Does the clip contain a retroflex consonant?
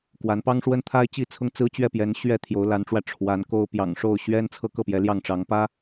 yes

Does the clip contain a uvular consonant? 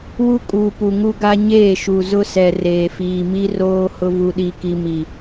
no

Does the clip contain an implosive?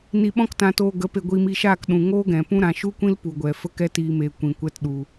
yes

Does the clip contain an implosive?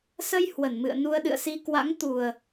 yes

